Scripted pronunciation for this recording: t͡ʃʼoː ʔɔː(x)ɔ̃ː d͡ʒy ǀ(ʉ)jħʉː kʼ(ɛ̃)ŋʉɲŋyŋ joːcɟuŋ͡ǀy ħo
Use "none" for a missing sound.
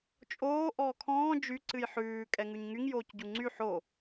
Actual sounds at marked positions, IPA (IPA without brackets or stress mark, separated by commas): kʰ, ɨ, ɛ